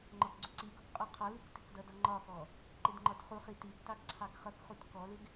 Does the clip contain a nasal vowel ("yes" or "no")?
no